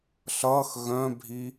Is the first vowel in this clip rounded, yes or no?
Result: no